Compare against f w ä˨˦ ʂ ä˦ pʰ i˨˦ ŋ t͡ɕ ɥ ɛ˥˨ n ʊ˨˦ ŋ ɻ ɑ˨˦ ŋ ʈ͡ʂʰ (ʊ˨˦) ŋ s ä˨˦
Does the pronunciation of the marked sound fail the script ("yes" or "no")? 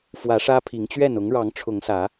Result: no